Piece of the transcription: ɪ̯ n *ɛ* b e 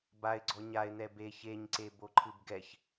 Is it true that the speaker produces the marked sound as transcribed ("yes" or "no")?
yes